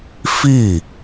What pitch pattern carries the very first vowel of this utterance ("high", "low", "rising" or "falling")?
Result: falling